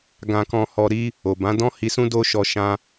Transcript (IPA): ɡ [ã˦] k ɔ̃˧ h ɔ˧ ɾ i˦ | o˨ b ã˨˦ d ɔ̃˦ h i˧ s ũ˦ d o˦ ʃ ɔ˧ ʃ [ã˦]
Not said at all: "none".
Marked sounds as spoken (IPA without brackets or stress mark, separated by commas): ã˧, ã˦